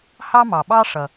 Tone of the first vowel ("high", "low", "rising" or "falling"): high